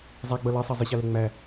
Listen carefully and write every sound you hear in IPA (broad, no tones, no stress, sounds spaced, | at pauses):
zˤ æ ɡ͡b ʌ l ɑ sˤ ɑ zˤ ɪ ɕ ɑ l ɛ ŋ͡m æ